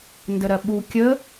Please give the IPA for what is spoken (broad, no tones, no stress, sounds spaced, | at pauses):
n d ə ɾ ɜ ɓ u kʲ ə